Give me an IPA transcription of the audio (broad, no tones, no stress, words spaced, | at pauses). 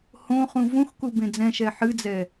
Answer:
hõχũ vũxkubẽ d͡zɛ̃ʃɛ ħɨd͡zɛ